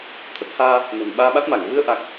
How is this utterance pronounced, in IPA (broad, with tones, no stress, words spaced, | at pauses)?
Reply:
t̪ʰə˦˥t̚ haː˧ | nə̤ː˨˩nɓaː˧ɓa˦˥t̚ma˧˩ŋ vɨ˧ə̯ʔa˨˩k̚